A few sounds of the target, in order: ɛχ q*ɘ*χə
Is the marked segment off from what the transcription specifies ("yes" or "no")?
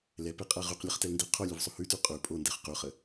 yes